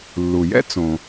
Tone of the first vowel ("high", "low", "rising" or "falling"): low